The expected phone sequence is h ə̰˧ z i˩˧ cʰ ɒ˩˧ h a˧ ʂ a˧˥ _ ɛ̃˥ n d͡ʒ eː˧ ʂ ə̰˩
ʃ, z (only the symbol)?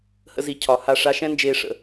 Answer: ʃ